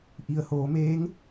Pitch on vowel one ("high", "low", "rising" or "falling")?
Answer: low